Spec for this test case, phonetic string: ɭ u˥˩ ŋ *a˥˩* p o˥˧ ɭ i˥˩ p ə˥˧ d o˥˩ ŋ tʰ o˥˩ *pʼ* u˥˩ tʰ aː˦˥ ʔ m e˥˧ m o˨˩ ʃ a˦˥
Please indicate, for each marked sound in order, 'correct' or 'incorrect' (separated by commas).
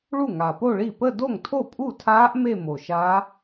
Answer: incorrect, correct